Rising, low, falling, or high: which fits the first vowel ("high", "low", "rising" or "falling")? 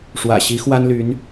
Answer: low